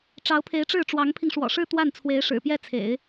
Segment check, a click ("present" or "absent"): absent